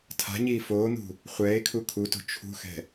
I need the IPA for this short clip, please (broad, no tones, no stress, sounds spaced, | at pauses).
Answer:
tʰ a̤ ɲ iː f oː n̪ ṳ | χʷ ɛː e̯ kʰ u kʰ u t o̤ t͡ʃʰ ṳ x ɛ̤